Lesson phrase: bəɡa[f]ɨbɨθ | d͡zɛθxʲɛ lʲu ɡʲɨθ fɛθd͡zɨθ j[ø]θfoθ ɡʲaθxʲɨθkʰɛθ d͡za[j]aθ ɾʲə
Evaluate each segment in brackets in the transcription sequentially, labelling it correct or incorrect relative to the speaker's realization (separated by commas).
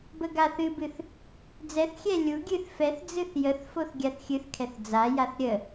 incorrect, incorrect, correct